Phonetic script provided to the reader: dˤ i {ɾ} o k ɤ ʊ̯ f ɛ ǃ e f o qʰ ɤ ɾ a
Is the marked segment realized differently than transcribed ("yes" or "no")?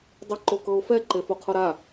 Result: yes